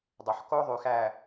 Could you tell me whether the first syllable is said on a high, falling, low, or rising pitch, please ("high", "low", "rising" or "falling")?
low